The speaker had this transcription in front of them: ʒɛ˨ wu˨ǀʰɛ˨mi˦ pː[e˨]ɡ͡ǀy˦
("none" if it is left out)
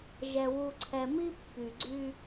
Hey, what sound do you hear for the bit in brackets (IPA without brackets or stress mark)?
y˨